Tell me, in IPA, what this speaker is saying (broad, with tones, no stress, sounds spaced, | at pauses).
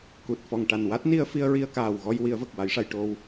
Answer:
k u˨˩ t̚ f ɔ˨˩ ŋ ʈ a˨˩ n w a˦˥ t̚ n i˧ ə̯ f i˧ ə̯ ɹ i˧ ə̯ k aː˨˩ w ɣ ɔ˧ j w i˨˩˦ ə̯ v ə˨˩ k̚ w a˨˩˦ j ʂ a˨˩˨ j ʈ o˧ w